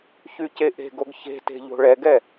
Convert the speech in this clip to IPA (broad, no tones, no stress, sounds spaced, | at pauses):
ç y c e ʔ e̤ ɡ o ɡ ç e̤ t e̤ ʎ o̤ ɭ ɛ ɡ ɛ